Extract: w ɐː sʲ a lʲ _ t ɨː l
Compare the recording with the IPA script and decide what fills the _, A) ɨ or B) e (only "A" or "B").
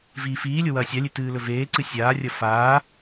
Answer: B